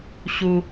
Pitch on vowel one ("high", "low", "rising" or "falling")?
high